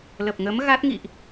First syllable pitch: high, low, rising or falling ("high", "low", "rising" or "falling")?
low